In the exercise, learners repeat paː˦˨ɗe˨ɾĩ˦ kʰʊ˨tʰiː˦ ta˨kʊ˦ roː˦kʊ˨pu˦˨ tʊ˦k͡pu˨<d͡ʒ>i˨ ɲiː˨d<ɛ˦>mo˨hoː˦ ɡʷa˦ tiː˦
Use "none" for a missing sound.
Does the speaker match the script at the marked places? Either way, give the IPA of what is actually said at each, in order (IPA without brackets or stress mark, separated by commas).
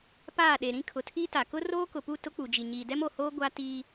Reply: d͡ʒ, ɛ˦